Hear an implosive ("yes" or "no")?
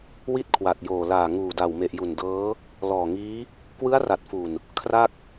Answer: no